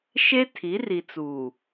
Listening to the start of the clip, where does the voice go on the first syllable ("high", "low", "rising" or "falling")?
high